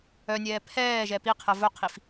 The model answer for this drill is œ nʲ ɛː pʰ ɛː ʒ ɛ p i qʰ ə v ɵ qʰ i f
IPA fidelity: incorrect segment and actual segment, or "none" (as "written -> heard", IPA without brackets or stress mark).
none